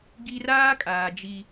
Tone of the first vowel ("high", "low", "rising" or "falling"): high